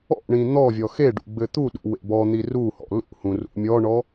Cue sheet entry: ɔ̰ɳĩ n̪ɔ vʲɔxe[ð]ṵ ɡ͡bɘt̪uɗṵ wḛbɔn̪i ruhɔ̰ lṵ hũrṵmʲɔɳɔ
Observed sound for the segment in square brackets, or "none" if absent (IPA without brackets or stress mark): ɖ